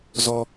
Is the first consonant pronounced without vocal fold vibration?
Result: no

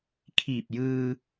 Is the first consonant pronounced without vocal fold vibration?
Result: yes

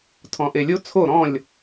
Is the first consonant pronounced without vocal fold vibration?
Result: yes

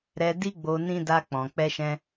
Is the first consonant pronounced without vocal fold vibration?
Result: no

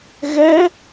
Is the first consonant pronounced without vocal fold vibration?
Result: no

